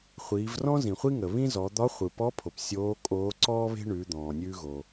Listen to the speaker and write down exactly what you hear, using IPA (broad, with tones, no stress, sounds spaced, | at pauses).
χʷ iː˩˧ v r ɔ̃˥ z ĩ˩ χʷ i˥ ŋ ə˩ β ĩ˥ z ɔ˩˧ d̪ ɒ˧˥ χʷ ɯ˩ p ɔ˧˥ pʰ o˩ p sʲ oː˧˥ kʼ oː˧˥ ǀ ɔː˥ β e̤˥ ɳ ʉ˩˧ d̪ ɔ̃ː˩ nʲ ʉː˧ ɣ o˩